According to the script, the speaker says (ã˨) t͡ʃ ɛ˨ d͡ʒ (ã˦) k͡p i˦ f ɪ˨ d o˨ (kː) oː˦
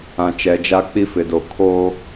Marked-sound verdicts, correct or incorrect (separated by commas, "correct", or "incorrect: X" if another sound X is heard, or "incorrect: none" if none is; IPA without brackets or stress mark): correct, incorrect: a˦, incorrect: kʰ